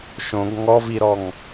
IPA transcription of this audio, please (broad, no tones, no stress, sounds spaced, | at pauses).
ʃ õ ɡ ŋ ɔ v i ɾ ɔ ŋ